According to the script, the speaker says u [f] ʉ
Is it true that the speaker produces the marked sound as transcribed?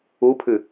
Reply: no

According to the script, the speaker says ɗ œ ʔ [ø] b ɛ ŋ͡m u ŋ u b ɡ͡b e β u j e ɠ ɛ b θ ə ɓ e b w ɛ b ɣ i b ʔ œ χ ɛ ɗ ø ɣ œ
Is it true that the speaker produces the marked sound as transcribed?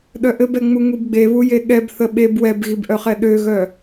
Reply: no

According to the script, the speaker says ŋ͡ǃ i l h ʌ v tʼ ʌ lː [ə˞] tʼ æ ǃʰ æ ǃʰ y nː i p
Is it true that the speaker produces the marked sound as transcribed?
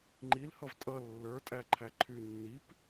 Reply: yes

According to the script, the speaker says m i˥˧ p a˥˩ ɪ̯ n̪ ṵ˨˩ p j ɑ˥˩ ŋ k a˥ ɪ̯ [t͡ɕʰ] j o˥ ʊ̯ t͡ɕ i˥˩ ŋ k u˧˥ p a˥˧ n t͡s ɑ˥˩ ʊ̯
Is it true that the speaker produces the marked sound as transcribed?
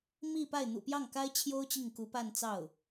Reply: yes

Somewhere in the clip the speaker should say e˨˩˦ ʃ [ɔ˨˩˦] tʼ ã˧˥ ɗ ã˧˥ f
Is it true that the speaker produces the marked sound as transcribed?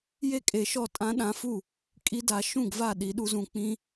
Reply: no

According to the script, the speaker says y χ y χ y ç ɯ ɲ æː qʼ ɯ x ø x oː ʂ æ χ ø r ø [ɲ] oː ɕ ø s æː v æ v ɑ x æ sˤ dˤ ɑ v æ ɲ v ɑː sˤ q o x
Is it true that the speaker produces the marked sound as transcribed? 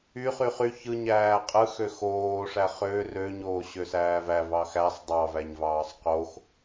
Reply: yes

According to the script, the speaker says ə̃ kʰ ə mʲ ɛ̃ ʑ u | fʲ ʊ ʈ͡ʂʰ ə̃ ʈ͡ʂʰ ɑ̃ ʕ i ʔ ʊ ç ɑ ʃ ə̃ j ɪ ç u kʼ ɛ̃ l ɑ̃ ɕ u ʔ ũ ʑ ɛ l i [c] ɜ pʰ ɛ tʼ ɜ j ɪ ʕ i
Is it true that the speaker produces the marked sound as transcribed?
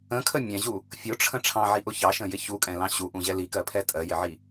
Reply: no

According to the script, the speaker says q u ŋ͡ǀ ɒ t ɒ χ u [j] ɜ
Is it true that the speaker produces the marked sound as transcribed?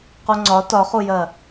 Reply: yes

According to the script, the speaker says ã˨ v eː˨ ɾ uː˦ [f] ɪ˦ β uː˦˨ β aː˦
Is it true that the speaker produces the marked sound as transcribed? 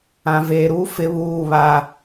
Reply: yes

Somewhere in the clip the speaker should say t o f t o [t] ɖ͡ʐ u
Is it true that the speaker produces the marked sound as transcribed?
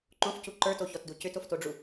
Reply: no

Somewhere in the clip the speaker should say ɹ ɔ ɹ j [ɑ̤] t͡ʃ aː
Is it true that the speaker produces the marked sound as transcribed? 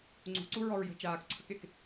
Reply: no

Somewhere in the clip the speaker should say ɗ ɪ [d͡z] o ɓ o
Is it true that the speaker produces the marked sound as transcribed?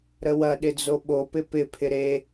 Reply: yes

